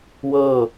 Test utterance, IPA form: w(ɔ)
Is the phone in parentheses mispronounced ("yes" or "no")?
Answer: yes